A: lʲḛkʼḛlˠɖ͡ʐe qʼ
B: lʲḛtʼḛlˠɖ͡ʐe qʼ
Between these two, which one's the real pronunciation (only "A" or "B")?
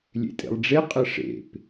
B